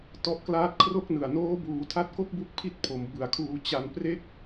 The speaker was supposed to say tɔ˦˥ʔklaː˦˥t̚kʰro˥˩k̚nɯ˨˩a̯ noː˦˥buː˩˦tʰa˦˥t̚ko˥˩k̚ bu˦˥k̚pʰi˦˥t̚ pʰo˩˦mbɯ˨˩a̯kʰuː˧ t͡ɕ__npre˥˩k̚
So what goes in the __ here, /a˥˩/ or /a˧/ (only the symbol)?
a˧